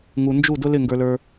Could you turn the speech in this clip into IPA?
ŋ u˨ n d͡ʒ u˦˨ d ʊ˦ l ɪ˦˨ ŋ ɡ ə˞˧ l ə˞˧

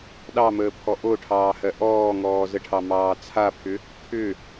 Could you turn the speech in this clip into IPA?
ɗ ɑ m əː pʰ ɔ ʔ o ʈʰ ɑː h ɜ ʔ ɔː ŋ ɔː z ə ʈʰ ɑ m ɑː t͡sʰ a pʰ ʏ | kʰ ʏ

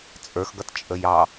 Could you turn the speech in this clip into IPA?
t͡sʼ ə˞ x ɡ ʌ t t͡ʃʼ ə j ɑ

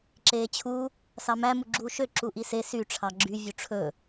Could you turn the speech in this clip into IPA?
ǁ eː t͡ɕʰ u | s ɑ m æ m u ɡ͡ǁ uː ʃ ø ǁ u ʔ i s e s y ʈ͡ʂʰ ɑ ɡ͡ǁ y vʲ u ʈ͡ʂʰ ɵ

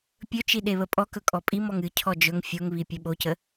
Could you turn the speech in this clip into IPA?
pʲ ɵ t͡ʃ i ɗ e β ə pʼ ɔ k ɵ kʼ ɔ pʼ i m ɔ ŋ ɨ cʰ ɔ d͡ʒ ɵ ŋ fʲ o ŋ β i pʲ ɵ ɓ o c ə

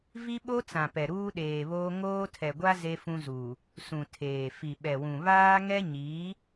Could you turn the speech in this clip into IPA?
v i˦ ɓ o˦ t͡s ã˨ p ɛ˨ ɾ uː˦ ɗ eː˨ β oː˦ ŋ oː˦ tʰ ɛ˨ ɡʷ a˦ z e˦ f ũ˦ z uː˨ | s ũ˨ tʰ eː˨ f i˨ ɓ ɛ˨ w ũ˨ β aː˦ ŋ ɛ˦ ɲ iː˨˦

